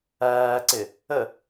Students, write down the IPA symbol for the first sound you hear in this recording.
æː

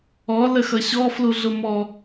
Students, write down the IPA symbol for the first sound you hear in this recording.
ɔ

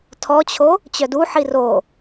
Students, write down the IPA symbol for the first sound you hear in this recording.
tʰ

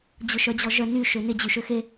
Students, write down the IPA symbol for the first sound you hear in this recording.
d͡ʑ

